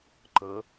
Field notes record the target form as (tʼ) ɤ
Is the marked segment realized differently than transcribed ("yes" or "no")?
yes